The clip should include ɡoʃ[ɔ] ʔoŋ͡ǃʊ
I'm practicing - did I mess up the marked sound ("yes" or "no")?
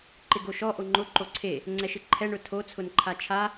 no